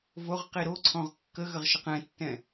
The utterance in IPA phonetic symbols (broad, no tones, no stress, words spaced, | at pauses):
voʁ qiɾoǀʰɔ̃ʁ kːəɣəʁ ʃəqɛ̃tːɛ̃